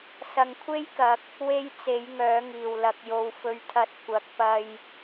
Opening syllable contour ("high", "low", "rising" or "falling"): low